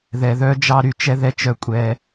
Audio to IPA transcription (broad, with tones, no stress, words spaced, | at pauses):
ðɛ˩ðœ˦ d͡ʒɑ˨ ɾy˨ t͡ʃɛ˥ðɛ˦ t͡ʃœ˨kʷʼɛ˨